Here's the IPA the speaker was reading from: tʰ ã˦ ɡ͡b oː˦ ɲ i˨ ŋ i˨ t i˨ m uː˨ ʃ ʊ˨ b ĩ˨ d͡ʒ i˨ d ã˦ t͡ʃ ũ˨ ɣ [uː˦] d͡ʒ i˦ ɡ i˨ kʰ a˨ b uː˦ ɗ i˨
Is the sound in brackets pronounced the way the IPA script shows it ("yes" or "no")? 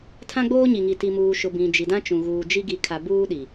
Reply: no